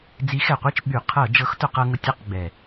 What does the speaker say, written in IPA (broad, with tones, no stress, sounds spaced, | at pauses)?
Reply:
d͡z i˨˥ x ɛ˨˩ qʷ i˥˨ t͡ʃ ɓ y˧˩˧ qʰ ɤ˧˩˧ d͡ʒ ɤ˨˥ x t ʊ˧˩˧ q ɤ˧ ŋ ʊ˧ tʲ ɤ˥˨ q ɡ͡b ɛ˨˩